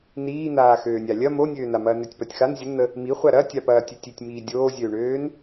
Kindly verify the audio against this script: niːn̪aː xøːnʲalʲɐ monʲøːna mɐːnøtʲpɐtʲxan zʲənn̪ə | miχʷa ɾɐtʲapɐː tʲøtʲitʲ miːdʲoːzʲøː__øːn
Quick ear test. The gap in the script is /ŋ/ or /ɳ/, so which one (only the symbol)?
ɳ